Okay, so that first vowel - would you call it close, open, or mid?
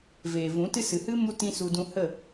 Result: mid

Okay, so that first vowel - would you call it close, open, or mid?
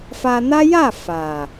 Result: open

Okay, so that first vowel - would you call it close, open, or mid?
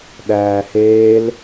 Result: open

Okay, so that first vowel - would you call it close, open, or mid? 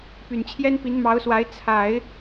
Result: close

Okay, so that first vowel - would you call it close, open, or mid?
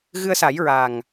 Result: close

